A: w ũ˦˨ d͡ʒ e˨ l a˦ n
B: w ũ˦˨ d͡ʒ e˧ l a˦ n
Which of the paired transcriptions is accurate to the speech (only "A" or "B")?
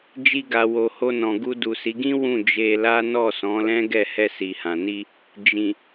B